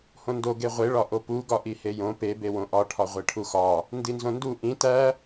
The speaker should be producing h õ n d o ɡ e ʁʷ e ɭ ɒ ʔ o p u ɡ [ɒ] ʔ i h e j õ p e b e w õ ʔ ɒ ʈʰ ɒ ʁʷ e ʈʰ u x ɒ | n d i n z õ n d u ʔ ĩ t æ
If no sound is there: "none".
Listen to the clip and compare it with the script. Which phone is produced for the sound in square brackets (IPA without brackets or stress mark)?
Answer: ɒ